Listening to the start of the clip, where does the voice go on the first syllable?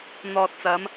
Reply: low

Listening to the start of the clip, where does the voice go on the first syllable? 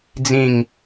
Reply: falling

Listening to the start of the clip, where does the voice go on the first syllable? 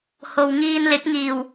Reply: low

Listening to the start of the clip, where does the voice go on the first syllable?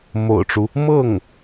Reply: low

